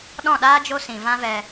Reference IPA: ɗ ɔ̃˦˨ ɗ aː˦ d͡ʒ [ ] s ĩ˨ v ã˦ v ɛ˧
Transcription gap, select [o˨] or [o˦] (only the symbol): o˦